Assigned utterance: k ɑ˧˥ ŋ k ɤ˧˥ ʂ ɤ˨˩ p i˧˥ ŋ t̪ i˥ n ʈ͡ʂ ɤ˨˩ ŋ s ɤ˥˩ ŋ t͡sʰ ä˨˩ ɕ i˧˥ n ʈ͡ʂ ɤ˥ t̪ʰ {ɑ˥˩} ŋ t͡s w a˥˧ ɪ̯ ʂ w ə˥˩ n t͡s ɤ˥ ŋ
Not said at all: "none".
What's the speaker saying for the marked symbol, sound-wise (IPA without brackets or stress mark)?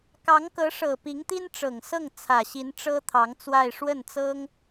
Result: ɑ˧˥